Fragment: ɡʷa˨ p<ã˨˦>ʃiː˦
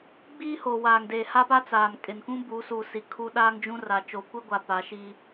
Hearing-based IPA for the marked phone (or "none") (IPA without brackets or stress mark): a˨˦